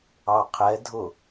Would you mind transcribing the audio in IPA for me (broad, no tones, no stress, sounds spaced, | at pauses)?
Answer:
ɑ qʰ ɛ dʱ ʊ